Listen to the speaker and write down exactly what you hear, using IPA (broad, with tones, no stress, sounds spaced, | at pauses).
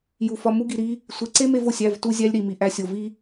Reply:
j u˨ f ɒ˧ m u˧ ɡ i˨ ɾ i˧ | sʷ e˨ ǀ e˦ m e˧ v o˨ sʲ æ˦˨ v t u˦ zʲ æ˦ lʲ ɾ i˨ m i˨ ʔ æ˧ sʲ o˨ v i˦